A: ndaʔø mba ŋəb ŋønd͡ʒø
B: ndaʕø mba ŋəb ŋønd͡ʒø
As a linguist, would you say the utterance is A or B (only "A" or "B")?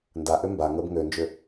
A